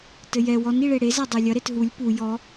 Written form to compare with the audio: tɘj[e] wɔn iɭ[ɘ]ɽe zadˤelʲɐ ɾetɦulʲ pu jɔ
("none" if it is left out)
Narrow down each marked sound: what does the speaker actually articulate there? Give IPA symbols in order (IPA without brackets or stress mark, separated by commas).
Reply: ɛ, e